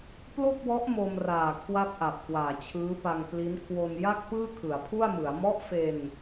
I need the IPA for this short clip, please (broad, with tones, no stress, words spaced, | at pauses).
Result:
plo˥˩k̚wɔ˦˥ʔ mo˧mraː˨˩ kʰwa˥˩p̚ʔa˨˩p̚ kwaː˨˩t͡ɕʰɯː˦˥pa˧ŋpli˦˥n kʰwo˧nja˥˩k̚ pɯː˥˩kʰɯ˩˦a̯pʰu˥˩a̯mɯ˩˦a̯ mɔ˦˥ʔfe˧n